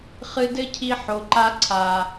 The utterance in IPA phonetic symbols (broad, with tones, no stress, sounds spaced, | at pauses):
χ ɨ˧ d ɘ˦ cʰ i˧ ħ o˨ ǃ a˧ ǀʰ a˨